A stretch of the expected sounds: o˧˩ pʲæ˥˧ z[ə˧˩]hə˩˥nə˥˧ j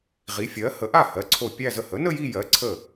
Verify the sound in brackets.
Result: correct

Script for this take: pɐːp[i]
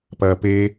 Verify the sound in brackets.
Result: incorrect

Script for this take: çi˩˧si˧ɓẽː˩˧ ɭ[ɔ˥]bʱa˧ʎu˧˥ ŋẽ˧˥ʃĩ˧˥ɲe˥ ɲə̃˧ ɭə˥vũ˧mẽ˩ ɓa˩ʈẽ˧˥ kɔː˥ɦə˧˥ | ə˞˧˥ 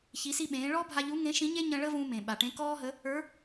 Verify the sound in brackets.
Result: incorrect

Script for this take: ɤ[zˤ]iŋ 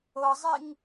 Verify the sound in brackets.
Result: correct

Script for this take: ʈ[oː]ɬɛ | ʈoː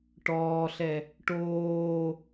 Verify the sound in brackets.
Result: incorrect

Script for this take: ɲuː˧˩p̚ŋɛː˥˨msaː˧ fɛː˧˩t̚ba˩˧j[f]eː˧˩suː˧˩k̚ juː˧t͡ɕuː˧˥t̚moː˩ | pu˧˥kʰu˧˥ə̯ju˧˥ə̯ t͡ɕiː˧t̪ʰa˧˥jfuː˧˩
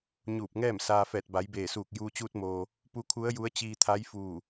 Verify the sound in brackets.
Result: incorrect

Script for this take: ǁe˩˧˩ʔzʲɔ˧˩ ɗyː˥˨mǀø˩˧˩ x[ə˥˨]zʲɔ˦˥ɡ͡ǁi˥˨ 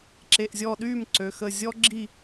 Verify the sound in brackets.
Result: incorrect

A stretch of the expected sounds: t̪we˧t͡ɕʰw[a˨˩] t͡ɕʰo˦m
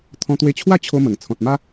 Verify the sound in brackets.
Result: incorrect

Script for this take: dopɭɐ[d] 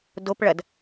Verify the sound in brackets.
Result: correct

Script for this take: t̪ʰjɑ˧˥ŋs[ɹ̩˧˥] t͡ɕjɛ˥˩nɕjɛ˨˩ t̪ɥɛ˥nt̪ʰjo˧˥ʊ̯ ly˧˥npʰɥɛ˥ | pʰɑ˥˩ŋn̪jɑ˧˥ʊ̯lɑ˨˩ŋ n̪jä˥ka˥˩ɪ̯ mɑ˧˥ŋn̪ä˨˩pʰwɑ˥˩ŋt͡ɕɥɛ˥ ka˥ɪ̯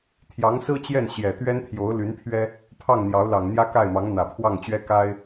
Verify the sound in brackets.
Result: incorrect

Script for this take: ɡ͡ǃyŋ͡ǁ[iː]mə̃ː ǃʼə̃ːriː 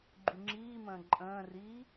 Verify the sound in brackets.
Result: correct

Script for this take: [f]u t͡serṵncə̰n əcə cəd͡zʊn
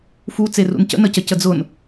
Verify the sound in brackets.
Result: correct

